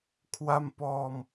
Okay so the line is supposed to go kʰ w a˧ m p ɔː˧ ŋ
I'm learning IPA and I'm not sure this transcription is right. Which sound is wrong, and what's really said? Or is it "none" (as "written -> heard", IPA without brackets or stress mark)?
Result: ŋ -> m